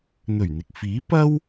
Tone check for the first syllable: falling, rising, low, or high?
low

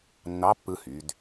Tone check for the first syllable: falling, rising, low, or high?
rising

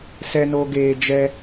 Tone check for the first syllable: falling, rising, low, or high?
low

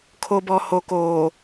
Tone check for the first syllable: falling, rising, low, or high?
low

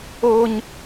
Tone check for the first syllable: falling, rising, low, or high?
high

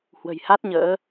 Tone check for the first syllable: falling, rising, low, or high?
low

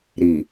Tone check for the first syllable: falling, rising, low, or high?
low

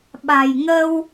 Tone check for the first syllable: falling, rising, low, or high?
low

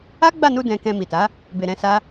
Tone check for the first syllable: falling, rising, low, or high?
high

